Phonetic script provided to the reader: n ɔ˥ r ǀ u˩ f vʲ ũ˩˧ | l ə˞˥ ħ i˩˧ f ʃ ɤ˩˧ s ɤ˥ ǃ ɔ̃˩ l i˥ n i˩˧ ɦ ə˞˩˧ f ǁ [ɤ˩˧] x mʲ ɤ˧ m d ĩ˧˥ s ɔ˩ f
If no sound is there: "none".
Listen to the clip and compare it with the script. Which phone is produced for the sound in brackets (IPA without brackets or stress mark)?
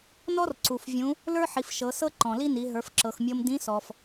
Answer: ɤ˩